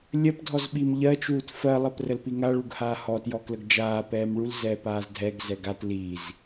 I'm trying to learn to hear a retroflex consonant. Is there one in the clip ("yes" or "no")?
yes